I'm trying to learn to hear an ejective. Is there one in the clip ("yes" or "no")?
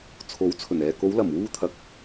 no